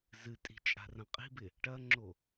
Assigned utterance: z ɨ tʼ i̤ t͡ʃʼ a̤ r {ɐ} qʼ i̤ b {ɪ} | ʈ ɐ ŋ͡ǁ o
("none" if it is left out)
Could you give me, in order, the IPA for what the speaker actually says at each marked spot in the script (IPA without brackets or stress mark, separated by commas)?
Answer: ɐ̃, ɪ